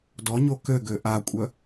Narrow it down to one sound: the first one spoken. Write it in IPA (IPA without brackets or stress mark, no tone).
d